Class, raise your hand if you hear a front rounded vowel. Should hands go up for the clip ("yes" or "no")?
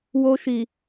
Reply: no